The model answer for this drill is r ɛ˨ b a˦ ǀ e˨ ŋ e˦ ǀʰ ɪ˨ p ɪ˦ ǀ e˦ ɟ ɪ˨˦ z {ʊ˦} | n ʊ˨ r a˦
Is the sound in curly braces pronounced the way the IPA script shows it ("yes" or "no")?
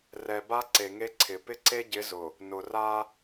no